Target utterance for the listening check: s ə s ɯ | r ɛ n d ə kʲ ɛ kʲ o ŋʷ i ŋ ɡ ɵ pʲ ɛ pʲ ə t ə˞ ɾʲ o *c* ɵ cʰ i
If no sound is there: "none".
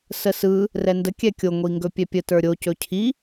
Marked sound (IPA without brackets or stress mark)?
c